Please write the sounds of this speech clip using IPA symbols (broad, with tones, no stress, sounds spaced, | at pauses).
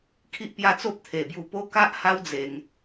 kʰ i˦ ʔ p j a˥˧ t͡s o˦ p̚ t̪ʰ e˨˩ b j u˧ p o˦ k a˦ ʔ h a˦ w d͡z e˧ ŋ